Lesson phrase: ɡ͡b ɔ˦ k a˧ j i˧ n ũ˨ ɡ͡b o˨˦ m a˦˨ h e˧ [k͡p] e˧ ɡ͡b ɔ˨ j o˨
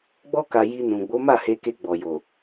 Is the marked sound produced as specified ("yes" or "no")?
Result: no